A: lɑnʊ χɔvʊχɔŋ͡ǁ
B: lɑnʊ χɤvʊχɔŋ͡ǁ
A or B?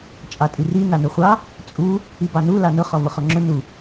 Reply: A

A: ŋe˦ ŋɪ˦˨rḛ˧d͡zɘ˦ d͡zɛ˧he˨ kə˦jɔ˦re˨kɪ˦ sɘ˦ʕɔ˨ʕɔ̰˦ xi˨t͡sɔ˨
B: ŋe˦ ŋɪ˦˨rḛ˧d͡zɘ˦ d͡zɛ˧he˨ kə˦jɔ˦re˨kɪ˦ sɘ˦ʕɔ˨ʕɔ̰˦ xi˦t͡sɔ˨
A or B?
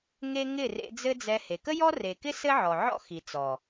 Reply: A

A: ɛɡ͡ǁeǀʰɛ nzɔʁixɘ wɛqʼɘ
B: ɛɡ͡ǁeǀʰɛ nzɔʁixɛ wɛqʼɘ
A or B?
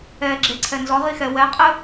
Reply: B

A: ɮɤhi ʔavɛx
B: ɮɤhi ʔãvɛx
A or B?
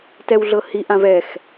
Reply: B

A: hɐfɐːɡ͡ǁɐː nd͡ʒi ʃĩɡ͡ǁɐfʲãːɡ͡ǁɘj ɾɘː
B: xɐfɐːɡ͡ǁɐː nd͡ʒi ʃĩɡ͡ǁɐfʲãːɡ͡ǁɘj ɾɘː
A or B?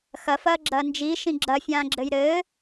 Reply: B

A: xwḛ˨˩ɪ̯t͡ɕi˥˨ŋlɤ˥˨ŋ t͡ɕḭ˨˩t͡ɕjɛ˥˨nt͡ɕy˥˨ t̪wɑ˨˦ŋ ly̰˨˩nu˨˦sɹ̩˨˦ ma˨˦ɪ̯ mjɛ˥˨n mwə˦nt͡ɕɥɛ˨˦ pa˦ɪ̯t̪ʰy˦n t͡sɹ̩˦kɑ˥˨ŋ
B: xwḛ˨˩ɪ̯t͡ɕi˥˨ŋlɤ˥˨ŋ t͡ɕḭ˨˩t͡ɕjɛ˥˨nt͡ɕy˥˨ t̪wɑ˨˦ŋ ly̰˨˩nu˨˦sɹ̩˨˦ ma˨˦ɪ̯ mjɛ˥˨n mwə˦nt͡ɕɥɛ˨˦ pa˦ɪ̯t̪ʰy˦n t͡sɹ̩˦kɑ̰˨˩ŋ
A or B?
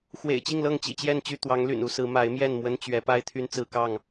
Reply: A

